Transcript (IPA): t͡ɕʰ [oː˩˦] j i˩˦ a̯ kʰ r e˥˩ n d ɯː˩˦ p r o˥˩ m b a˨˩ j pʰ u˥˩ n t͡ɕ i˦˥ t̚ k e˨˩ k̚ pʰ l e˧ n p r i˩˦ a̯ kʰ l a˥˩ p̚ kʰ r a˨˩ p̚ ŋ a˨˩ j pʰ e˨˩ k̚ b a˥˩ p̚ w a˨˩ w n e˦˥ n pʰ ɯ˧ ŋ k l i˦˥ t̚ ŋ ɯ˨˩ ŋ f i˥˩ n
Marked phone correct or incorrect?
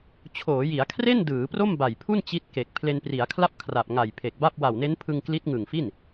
correct